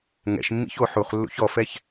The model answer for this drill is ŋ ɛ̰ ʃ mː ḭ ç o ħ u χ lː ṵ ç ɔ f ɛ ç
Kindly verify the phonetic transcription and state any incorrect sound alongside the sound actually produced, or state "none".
none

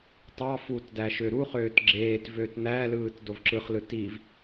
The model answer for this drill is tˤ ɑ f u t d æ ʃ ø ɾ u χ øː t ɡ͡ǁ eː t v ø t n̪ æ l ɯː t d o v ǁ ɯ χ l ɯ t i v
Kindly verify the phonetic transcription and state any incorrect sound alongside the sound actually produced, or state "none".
none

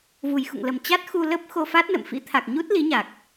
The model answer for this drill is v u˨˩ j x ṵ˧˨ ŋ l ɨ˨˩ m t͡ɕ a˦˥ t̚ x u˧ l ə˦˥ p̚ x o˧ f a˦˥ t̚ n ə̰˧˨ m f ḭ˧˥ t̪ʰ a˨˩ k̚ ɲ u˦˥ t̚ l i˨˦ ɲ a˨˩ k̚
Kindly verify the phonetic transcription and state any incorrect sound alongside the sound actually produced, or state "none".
ɨ˨˩ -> ə˨˩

